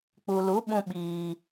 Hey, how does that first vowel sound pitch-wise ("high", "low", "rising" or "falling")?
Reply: low